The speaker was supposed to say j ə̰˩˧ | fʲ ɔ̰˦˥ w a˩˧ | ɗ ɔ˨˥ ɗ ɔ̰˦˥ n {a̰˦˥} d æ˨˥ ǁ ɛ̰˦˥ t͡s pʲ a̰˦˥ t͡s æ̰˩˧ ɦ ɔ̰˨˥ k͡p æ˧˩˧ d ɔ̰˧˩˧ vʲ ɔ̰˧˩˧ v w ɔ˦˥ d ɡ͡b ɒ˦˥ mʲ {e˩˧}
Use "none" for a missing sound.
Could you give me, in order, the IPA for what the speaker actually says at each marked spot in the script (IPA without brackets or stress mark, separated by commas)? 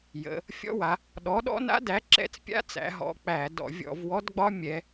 a̰˦˥, ɛ˩˧